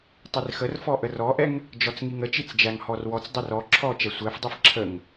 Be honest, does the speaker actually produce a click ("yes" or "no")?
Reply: yes